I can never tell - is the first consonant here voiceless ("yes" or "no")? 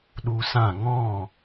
no